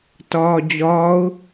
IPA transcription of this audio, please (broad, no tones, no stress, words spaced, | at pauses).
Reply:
tɒːd͡ʑɒːʊ̯